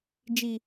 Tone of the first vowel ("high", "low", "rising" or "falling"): low